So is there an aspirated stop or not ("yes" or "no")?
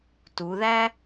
no